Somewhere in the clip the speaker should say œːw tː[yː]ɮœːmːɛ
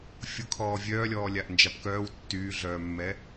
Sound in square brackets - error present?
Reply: no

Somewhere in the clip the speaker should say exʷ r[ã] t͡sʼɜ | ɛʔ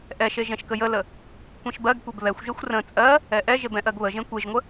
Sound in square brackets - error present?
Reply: yes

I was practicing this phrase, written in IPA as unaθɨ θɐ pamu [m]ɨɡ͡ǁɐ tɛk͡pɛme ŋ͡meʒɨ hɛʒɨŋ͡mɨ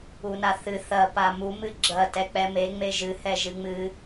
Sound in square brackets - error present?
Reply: no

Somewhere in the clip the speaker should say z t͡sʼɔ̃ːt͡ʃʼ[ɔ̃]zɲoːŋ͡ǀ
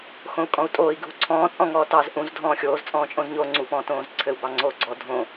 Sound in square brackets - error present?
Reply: yes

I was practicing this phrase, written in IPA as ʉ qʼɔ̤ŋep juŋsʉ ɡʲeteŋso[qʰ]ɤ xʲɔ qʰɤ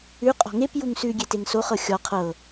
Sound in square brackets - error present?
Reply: yes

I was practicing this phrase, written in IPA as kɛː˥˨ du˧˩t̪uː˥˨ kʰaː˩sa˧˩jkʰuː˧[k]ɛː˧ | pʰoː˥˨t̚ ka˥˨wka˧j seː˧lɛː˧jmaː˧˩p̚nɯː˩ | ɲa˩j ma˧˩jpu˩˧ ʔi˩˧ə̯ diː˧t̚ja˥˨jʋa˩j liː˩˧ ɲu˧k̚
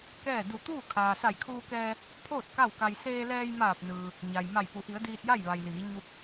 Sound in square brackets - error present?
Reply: no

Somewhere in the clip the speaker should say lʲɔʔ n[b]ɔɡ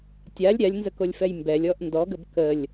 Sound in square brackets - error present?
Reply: yes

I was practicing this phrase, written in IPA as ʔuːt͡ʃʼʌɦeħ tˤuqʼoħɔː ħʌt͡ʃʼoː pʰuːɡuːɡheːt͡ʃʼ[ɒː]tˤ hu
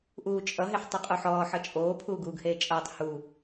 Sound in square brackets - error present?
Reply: yes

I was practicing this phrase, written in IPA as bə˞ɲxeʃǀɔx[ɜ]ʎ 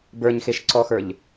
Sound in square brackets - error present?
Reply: yes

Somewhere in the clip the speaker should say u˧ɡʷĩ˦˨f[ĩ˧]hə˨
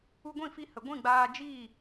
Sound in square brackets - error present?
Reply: yes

